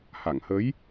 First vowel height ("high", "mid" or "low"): low